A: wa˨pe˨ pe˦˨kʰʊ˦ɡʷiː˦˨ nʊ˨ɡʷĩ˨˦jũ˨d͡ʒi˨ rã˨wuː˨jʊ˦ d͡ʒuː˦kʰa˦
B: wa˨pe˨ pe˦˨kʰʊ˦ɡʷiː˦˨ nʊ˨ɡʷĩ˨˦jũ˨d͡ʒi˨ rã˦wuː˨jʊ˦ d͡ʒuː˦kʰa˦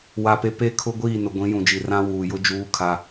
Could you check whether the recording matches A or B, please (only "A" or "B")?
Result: B